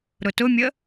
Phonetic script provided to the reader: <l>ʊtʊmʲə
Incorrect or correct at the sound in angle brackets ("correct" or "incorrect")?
incorrect